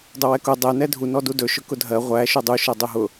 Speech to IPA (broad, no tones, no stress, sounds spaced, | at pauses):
dˤ ʊ w ɛ k ʊ dˤ ɛ n ɛ dʱ u n ɔ d u d ɵ ʃ ʊ k ʊ dʱ ɜ ʁʷ æ ʃ u dˤ u ʃ ɜ dˤ ɵ ɦ ʊ